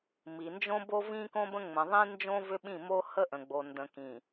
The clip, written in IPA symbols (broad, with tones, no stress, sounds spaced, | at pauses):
m i˨ n d͡ʒ õ˦ b o˦ v ĩ˦ k õ˦ b ə̃˦ ŋ͡m ə̃˨ ðˤ ĩ˦ n d͡ʒ õ˦ v ʏ˦ ɓ ĩ˦˨ m o˦ h ə˦ ʔ ə̃˨ ɡ͡b o˨ n d ə̃˨ k ĩ˨